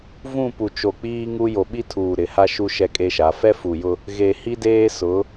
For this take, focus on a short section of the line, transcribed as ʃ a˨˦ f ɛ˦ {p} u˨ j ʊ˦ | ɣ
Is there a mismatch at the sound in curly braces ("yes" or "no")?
yes